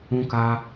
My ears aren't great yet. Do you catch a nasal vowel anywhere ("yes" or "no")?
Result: yes